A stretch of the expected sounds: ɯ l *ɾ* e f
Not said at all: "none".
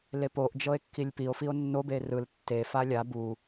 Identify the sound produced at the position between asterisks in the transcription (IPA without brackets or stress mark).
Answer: tː